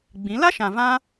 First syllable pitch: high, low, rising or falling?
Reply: rising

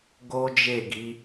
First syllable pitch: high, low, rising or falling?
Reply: high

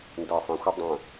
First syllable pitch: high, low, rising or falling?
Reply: low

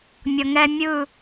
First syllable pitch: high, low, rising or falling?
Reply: low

